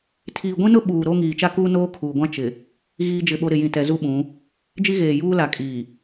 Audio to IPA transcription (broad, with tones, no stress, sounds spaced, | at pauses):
tʰ iː˨ ɡʷ ĩ˦ n ʊ˦ ɓ uː˨ ɾ o˦ ŋ iː˨ t͡ʃ a˦ k uː˦ n oː˦ kʰ uː˨ ɡʷ ã˦ t͡ʃ ɪ˨ | ɣ iː˦ d͡ʒ ɪ˦˨ ɓ o˦ ɾ ɪ˨ j ĩ˨ t ɛ˨ z u˦ ɓ ũ˨˦ | d͡ʒ i˦ ɣ eː˨ j uː˦ l a˨ kʼ iː˨